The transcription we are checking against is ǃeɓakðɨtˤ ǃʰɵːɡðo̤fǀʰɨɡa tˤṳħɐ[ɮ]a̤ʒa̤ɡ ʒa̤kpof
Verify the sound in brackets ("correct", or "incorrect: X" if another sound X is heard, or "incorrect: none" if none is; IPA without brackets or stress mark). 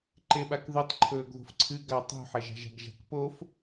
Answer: incorrect: ʒ